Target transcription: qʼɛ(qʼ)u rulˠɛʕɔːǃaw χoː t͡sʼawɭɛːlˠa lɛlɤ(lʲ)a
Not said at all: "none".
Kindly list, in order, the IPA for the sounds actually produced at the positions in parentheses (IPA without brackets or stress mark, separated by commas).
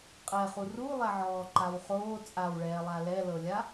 χ, lʲ